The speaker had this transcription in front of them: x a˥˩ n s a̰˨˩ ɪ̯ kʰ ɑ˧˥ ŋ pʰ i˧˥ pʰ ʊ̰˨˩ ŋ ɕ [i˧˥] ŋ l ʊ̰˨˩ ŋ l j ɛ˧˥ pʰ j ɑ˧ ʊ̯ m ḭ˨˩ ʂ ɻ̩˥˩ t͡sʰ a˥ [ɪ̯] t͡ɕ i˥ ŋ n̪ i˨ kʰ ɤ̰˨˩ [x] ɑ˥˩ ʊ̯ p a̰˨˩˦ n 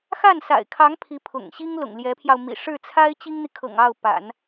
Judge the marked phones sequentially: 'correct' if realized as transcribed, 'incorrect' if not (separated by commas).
incorrect, correct, incorrect